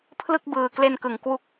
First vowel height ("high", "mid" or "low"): high